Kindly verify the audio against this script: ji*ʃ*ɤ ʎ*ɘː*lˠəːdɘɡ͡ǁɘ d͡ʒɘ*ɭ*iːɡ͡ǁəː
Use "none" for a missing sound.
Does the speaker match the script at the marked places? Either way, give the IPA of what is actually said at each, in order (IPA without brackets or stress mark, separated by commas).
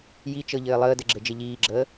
t͡ʃ, ɘː, ʎ